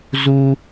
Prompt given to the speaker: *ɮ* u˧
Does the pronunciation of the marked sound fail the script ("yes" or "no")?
yes